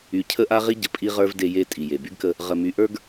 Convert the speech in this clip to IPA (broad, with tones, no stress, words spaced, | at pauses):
y˨cʰə˦ ʔa˦ʁi˦ ɟə˨pʼi˦ʁə˞˦v de˦je˦tʼi˨je˨ by˦ɡkə˦ | ʁə˨my˨ ʔə˞˦ɡ